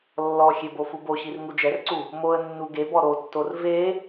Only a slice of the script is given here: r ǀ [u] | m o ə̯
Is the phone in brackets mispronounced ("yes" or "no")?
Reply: no